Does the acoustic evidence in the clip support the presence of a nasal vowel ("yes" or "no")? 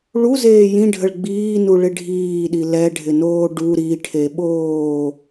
yes